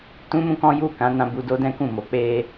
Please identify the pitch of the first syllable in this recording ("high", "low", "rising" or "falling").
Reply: high